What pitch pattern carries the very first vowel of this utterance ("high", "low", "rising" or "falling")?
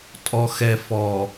low